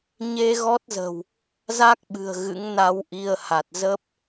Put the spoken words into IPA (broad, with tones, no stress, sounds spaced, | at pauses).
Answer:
ɲ e˧ ɣ ɔ˦˥ t̚ z ə̤˨˩ w | z a˦˥ k̚ ɓ ɨ̤˨˩ ə̯ ɣ ɨ̰˧˥ ŋ n a˧ w ʔ i˧ ə̯ h a˨˩ t̚ z ə˦˥ p̚